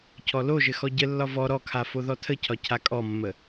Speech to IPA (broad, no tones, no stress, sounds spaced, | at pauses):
cʰ ɔ l o ʒ ɘ x ɔ ɟ ə lː ɒ v ɔ ɾ ɔ kʰ a f o ð ɔ tʰ ə cʰ ɒ cʰ a kʼ ɔ mː ə